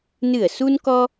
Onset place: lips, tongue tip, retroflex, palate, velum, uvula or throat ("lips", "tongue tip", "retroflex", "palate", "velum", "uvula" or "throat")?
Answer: tongue tip